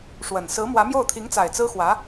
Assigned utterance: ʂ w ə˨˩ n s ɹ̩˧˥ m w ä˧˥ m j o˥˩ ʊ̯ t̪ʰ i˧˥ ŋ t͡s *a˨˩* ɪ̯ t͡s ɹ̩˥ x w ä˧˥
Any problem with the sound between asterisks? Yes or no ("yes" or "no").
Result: no